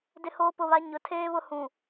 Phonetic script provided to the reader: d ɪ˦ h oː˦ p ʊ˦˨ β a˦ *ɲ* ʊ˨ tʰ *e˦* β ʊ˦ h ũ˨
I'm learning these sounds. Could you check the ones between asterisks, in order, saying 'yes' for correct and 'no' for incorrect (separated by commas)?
yes, no